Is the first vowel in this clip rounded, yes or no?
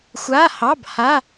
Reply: no